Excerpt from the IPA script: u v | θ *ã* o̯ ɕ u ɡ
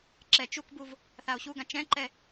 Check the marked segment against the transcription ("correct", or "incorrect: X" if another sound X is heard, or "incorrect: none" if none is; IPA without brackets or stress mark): incorrect: a